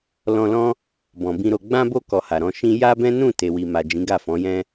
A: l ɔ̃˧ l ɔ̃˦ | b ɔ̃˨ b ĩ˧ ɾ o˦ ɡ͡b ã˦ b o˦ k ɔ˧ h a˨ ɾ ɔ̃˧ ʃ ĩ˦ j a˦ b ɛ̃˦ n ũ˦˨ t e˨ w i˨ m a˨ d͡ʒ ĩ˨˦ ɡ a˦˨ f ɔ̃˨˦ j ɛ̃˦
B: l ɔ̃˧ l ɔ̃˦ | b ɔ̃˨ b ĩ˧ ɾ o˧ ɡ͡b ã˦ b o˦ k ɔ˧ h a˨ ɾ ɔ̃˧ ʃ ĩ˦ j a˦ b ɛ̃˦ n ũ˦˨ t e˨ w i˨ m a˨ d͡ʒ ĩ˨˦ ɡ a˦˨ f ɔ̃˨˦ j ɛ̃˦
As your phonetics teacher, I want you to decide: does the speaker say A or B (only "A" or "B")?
B